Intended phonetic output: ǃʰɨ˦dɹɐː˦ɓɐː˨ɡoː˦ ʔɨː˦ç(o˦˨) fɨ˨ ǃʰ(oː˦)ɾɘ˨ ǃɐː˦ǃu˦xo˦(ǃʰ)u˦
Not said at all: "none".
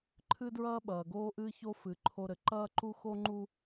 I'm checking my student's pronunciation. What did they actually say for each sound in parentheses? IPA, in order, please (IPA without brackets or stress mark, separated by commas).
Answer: o˦, o˦, ŋ͡ǃ